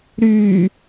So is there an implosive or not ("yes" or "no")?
no